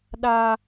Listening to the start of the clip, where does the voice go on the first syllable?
low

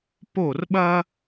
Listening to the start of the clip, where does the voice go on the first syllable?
falling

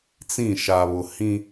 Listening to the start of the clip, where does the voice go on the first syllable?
falling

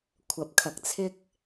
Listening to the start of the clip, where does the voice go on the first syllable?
rising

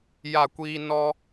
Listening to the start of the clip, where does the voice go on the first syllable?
falling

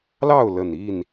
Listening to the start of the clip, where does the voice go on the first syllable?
falling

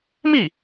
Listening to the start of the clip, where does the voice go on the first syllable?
falling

